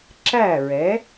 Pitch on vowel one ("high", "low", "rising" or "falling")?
falling